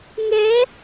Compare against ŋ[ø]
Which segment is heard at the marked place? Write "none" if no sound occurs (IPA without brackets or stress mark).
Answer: ɛ